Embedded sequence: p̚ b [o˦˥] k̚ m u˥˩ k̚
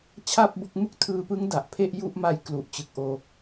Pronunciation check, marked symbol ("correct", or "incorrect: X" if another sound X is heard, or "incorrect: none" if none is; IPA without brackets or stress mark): correct